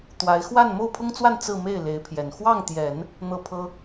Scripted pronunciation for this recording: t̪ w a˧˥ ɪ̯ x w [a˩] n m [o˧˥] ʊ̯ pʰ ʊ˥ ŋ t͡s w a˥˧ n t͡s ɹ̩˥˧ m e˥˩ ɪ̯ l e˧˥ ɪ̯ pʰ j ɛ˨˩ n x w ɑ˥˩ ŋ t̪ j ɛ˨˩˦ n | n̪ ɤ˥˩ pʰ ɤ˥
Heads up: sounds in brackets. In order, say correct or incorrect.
incorrect, incorrect

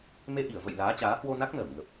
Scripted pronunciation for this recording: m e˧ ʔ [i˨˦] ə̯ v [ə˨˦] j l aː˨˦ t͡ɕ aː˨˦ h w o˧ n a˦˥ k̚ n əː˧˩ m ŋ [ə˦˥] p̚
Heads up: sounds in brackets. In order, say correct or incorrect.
incorrect, incorrect, incorrect

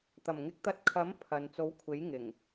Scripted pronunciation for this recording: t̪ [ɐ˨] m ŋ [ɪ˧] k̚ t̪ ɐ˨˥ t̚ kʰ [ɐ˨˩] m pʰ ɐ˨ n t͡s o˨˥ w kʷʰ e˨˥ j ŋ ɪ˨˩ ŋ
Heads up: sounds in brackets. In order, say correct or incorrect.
incorrect, incorrect, incorrect

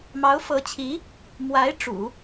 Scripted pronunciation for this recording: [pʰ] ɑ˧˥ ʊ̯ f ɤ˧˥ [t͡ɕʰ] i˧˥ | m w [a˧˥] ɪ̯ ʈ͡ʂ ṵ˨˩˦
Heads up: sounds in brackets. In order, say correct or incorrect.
incorrect, correct, correct

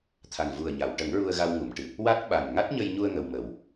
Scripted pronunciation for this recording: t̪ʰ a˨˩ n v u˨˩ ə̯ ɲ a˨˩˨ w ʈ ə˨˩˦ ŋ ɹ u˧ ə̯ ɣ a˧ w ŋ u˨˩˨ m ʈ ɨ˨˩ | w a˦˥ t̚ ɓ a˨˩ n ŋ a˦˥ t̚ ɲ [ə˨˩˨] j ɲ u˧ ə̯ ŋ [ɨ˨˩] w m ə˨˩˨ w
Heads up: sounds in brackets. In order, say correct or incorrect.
incorrect, incorrect

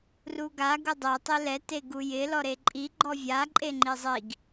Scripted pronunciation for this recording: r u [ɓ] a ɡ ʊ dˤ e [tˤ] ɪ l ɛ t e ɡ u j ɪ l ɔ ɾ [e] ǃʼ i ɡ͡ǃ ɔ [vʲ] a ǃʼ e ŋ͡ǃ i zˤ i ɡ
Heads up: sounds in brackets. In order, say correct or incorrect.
incorrect, correct, correct, correct

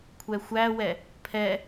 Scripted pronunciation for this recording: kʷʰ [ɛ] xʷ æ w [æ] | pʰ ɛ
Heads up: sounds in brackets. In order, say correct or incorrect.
correct, incorrect

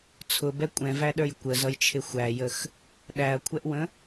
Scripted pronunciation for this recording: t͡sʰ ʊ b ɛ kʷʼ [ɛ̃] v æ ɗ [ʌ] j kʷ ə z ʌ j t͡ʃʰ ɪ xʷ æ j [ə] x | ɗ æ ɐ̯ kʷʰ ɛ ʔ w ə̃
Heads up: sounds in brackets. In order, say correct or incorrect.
correct, incorrect, correct

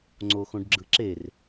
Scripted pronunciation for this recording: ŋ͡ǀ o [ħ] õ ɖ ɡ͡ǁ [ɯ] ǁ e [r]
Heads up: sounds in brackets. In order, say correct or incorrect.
incorrect, correct, correct

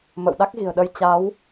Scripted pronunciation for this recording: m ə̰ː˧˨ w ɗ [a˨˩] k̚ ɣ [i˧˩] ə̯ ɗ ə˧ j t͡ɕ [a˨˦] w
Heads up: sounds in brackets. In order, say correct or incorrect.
incorrect, incorrect, correct

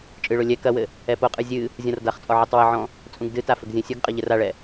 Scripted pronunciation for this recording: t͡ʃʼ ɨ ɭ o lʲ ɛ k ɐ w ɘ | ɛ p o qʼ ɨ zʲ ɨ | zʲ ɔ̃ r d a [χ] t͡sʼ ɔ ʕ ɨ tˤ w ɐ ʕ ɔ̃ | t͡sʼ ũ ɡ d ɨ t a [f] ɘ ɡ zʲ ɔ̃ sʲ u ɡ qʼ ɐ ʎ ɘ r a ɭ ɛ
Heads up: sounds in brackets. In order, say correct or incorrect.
correct, correct

